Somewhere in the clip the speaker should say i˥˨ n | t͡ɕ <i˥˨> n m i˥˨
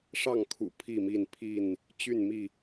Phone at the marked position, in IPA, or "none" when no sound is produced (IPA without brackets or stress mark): y˥˨